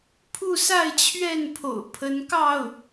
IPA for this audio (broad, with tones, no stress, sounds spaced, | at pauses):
pʰ u˥˧ s a˥˧ ɪ̯ t͡ɕʰ ɥ ɛ˥˩ n pʰ o̰˨˩ ʊ̯ pʰ ə˧˥ n k ɑ˥˩ ʊ̯